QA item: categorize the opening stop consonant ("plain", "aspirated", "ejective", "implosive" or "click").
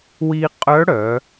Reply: ejective